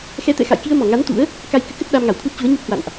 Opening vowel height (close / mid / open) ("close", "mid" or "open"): mid